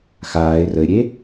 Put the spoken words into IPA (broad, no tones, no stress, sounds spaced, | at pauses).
x aː ɪ̯ r ə ɪ̯ ɾʲ e